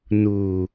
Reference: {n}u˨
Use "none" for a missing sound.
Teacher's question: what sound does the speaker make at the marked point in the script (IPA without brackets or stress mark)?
n